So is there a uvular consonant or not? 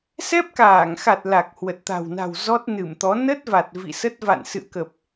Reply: no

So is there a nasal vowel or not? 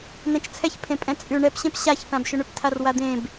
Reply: yes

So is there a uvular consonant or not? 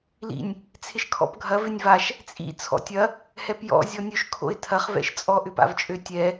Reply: yes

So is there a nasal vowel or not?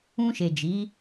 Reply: yes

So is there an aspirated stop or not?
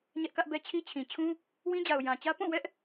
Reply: yes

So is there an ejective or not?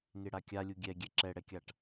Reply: no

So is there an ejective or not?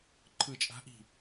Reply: yes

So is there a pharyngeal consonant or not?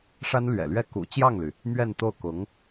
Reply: no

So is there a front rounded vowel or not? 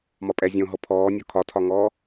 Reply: no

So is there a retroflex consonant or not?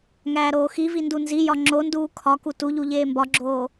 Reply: no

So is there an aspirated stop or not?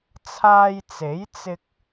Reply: yes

